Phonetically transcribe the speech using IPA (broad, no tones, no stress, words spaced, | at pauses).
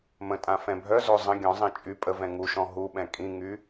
mə̃tʼã fɛ̃bʱœzo zˤə̃ ɡʲɔ̃zˤĩ t͡ʃʼy pʼəvɛ̃ ŋuʃɔ̃ ɦuɓɛ̃ kʼĩŋy